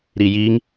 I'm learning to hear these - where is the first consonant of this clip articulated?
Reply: tongue tip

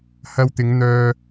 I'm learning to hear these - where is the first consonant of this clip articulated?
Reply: throat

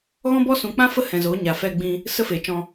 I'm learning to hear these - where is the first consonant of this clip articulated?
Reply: velum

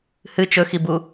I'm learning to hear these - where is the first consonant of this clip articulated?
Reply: throat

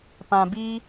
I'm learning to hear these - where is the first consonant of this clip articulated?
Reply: lips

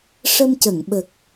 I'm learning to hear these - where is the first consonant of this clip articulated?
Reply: retroflex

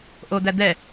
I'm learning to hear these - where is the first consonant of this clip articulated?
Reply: throat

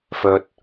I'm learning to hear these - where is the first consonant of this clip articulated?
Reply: lips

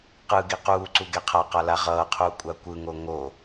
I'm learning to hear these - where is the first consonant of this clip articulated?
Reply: uvula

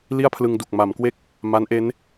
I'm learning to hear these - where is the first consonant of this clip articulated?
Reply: tongue tip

